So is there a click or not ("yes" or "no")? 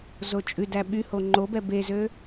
yes